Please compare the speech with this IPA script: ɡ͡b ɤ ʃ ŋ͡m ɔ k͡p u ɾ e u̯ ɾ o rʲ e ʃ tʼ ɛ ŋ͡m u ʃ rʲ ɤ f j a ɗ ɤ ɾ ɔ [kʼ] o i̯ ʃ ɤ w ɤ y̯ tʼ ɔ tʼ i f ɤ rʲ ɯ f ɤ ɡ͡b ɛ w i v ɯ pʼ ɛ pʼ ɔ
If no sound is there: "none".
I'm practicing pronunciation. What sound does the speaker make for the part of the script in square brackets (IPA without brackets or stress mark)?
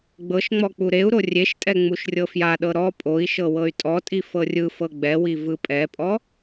pʼ